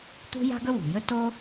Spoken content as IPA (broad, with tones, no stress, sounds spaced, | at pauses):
t̪ ṳ˥ j a̤˥ ɡ ɵ˥ w ṳ˩ j ɵ˥ t o˥